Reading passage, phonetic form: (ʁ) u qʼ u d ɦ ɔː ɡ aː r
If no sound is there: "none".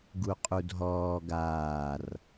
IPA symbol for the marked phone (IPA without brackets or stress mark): ɡ